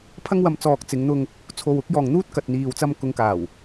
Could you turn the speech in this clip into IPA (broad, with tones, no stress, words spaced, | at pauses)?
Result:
pʰɐ˥ŋwɐ˧m t͡sɔː˨k̚t͡sɪ˨˧ŋn̪ʊ˧ŋ | t͡sʰo˨wʊ˨˥k̚jɔː˨ŋ n̪uː˥t̚kɐ˨t̚n̪iː˨wt͡sɐ˧m kʊ˨˧ŋkaː˨˩w